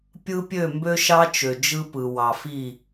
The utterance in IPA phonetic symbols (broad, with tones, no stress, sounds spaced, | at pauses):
pʲ ɯ˦ pʲ ø˦˨ m b ø˦ ʃ ɑ˦ t͡ʃ ø˨ d͡ʒ ɯ˦ p ɯ˨ w ɑ˨ f i˦˨